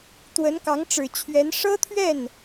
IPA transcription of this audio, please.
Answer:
t̪ w ə˧˥ n k ɑ˧˥ ŋ ʈ͡ʂ ɻ̩˨˩ t͡ɕʰ ɥ ɛ˧˥ n ʂ ɤ˥ t̪ʰ ɥ ɛ˥˩ n

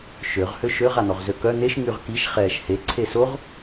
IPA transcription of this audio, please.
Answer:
ʃ ø ʁ h ø ʃ ø ʁ a n̪ ɔ ʁ z ø k œ n̪ e ʃ ŋ y ʁ k i ʃ χ ɛː ʃ h e ǀʰ e s o ʁ

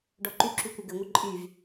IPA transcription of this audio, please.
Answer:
ɖ ɔ ǃ y ǁ y kʷ ɘ ɡ ɘ ŋʷ ɘ ǃʼ y v

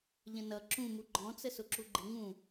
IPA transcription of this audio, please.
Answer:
ʎ ə̃ n ʌ ǁ ũ m u ɡ͡ǃ ɔ̃ t͡s ə s ʊ ǁ u ɡ͡ǃ ɪ ŋ ũ

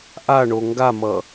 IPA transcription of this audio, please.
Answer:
ʔ a ɳ o ŋ ɡ a m ʌ

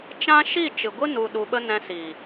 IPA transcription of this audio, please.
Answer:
t͡ʃ ã˦ ʃ i˦˨ t͡ʃ ɨ˨ ɡʷ ɨ˦ n u˧ ɗ u˧ ɓ ə˦ n ɛ̃˧ s iː˨

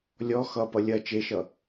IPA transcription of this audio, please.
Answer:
lʲ ɔ x ʌ p ʌ lʲ ɐ t͡ʃ e ʃ ʌ

